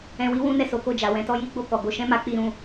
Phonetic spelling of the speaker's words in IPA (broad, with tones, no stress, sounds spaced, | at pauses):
ɛ̃˧ w i˦ w ũ˦ n ɛ˦˨ s o˨˦ k o˦˨ d͡ʒ a˨ w ɛ̃˧ t ɔ˦ j i˦ ɡ͡b o˦˨ k ɔ˨ ɡ o˧ ʃ ɛ̃˦ m a˧ k͡p i˧ ɾ ũ˧